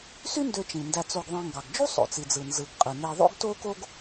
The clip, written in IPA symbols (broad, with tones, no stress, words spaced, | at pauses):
sy˦ ndø˨ t͡ʃĩ˩ndæ˨t͡so˨ɡ ðˤẽ˨ŋɡɑ˩ɡd͡ʒu˥ sˤo̰˩t͡si˩d͡zɯ˩ nzɯ˩ɡ qʼɯ˩ne˨ ðˤo̰˥ɡto˥ko˥ɡ